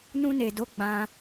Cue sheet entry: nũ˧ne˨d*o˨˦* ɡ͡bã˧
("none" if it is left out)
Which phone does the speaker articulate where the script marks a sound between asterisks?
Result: o˨˦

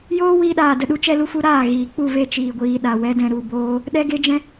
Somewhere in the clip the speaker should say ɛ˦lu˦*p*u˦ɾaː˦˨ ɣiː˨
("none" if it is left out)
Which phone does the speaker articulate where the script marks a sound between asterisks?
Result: f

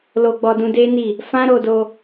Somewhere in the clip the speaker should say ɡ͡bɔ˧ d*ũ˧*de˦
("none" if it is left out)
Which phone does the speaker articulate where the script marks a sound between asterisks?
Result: ũ˧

